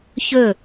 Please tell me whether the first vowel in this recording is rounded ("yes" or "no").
yes